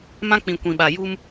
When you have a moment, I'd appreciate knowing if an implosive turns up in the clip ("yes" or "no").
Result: yes